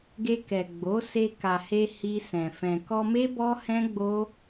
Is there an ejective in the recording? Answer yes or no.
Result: no